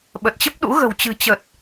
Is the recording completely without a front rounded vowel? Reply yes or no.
yes